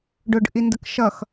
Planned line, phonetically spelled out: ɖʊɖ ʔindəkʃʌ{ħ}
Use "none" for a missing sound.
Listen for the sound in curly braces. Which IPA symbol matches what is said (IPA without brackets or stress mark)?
x